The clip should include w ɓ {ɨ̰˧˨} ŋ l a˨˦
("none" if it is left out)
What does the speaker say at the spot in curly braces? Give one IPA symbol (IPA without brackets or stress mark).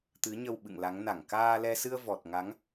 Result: ɨ̰˧˨